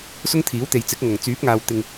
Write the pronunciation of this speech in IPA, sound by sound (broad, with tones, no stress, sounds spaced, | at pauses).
s ʊ˥ ŋ t̪ʰ iː˨˥ w t̪ e˨ j t͡s ɪ˨˥ k̚ ŋ ɐ˨˩ ŋ t͡s yː˨˥ p̚ ŋ aː˨ w t̪ ɪ˧ ŋ